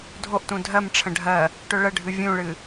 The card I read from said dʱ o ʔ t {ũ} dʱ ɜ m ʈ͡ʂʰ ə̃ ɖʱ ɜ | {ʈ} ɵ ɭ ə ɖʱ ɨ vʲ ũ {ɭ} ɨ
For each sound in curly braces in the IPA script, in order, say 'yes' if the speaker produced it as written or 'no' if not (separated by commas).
yes, yes, yes